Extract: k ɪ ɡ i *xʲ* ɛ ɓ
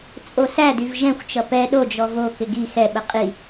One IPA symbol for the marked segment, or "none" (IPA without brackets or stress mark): x